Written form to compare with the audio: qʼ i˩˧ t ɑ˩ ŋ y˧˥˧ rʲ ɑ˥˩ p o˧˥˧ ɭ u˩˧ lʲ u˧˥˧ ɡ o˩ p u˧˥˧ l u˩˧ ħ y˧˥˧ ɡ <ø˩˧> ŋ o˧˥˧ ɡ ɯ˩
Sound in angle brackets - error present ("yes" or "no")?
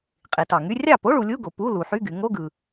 yes